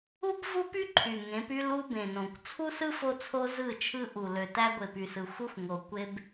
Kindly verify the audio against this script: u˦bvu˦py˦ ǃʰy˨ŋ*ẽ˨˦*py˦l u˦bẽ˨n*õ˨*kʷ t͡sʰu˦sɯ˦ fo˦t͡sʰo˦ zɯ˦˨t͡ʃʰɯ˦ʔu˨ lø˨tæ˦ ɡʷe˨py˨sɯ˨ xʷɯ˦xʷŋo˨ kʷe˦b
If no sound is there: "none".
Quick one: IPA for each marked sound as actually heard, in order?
ẽ˨˦, õ˨

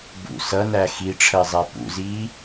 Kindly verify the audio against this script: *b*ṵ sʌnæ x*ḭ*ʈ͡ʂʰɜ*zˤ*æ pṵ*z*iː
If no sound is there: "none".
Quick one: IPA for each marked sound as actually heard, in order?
b, i, zˤ, z

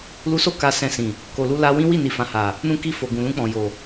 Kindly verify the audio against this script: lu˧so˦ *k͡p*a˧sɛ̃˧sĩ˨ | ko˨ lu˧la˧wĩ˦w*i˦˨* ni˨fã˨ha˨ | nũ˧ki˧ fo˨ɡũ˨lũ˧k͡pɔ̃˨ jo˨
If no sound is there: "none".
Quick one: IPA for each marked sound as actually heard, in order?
k, i˦˨

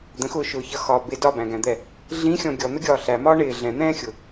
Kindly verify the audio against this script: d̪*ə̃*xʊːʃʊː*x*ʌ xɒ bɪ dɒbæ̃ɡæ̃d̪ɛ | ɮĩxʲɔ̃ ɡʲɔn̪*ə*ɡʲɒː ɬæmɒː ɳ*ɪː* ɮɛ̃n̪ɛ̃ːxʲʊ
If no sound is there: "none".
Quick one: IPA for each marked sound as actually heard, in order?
ə̃, ç, ə, ɪː

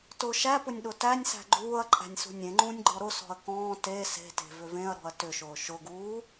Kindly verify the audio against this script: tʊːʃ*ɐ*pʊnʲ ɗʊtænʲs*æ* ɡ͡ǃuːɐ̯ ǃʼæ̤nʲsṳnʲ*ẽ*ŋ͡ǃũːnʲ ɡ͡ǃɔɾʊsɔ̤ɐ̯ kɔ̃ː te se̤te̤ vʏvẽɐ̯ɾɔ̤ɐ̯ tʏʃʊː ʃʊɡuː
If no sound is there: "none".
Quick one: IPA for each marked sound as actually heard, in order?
æ, æ̤, ẽ

